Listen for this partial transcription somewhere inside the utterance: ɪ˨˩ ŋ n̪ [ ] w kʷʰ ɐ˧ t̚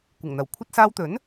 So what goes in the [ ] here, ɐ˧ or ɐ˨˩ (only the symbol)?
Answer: ɐ˨˩